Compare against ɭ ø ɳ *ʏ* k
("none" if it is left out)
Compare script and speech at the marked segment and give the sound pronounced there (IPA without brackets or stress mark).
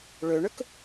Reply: ʏ